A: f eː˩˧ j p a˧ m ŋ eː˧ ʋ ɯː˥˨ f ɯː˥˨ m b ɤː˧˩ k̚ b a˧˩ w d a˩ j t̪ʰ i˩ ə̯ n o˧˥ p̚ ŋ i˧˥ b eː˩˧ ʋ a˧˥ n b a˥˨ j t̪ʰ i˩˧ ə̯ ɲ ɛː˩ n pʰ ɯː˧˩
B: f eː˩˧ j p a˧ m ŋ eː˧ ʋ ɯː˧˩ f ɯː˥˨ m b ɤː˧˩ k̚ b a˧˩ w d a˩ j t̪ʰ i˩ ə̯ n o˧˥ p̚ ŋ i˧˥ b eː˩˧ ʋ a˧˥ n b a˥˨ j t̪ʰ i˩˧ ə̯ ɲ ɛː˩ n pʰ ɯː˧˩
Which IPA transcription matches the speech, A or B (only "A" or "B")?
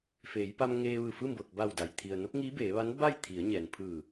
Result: B